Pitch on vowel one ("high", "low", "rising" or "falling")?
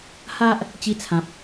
high